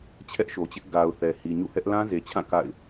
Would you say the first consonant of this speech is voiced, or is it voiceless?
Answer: voiceless